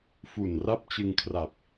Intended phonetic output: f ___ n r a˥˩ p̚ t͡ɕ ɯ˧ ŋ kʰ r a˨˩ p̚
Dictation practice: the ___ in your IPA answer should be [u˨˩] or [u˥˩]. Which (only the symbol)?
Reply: u˨˩